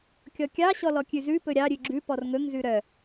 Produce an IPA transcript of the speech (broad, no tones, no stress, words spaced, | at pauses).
kʲɔkʲɑɕɔ lɔkʲʉzʉpɵ ɾʲɑɾʲʉ ɡ͡ǁʉ pɔrŋɵŋzʉ ɾœ